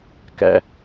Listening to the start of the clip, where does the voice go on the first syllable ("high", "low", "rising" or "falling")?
low